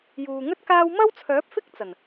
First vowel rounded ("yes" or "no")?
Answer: yes